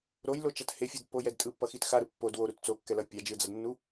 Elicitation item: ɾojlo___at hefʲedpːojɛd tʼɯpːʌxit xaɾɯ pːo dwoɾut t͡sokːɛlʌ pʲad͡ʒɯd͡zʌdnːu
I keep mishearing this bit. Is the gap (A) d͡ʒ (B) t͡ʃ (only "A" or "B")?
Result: B